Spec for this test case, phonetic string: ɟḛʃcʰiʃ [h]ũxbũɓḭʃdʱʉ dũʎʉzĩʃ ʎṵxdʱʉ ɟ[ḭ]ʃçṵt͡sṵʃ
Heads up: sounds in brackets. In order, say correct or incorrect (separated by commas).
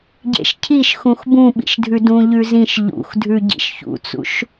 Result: incorrect, correct